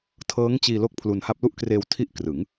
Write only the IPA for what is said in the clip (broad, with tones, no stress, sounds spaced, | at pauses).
tʰ ɤː˦˥ ŋ t͡ɕ iː˧ l o˥˩ k̚ pʰ l u˧ n h a˥˩ p̚ l u˥˩ ʔ k r eː˧ w tʰ i˥˩ ʔ k r ɯ˩˦ ŋ